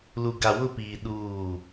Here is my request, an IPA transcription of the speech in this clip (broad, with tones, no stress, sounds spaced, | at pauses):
l u˨ ɡ a˨ w ʊ˦˨ p iː˨ ɗ uː˦˨